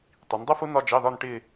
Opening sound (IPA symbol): tˤ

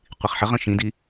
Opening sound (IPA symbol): qʷ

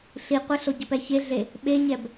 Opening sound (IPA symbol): ɬ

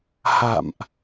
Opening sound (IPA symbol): h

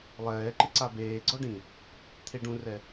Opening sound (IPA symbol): lˠ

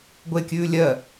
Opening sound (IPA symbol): ɡʷ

